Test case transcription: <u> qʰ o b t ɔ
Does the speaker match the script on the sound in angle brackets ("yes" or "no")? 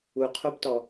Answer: yes